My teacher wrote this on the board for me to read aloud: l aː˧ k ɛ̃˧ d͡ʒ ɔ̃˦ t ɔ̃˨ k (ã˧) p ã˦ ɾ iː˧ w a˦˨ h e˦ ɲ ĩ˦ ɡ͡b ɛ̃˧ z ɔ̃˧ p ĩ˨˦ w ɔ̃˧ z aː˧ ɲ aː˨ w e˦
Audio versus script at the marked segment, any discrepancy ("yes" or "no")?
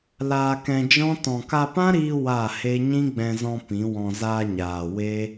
yes